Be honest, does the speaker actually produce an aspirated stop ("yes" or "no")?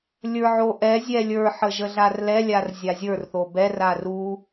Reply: no